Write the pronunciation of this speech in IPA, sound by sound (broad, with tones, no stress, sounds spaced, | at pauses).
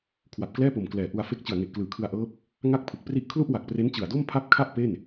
kʰ w a˨˩ p̚ k l ɛː˥˩ p o˨˩ m k l ɛː˨˩ ʔ u˧ a̯ f e˦˥ k̚ t͡ɕ ɯ˨˩ a̯ ŋ e˨˩ ʔ k l ɯː˩˦ kʰ ɯ˧ a̯ ʔ ɤː˦˥ p̚ | ŋ a˥˩ k̚ pʰ ɯ˨˩ k̚ p r i˥˩ ʔ kʰ l u˥˩ ʔ w a˨˩ k̚ p r e˦˥ n t͡ɕ ɯ˨˩ a̯ d o˥˩ m pʰ a˥˩ p̚ kʰ a˥˩ ʔ p e˥˩ n